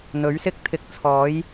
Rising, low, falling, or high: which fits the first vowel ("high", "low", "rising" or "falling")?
rising